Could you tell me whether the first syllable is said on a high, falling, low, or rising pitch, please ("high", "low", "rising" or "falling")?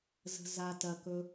low